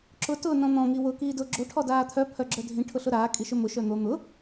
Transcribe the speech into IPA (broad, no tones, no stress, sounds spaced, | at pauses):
ǁ ʊ t ʊː n ɔ̃ n̪ ɔ̃ ŋ i w ʊ k iː d ʊː ɡ͡ǁ o ʈʰ ɔ d aː t̪ʰ œ pʰ œ ɡ͡ǁ œ dʱ ĩ ʈʰ ʊ ɬ ʊ ɾ aː kʼ i ʃ ɵ m ʊ ʃ œ n̪ o n̪ ʊ